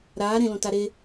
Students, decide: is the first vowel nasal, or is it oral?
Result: oral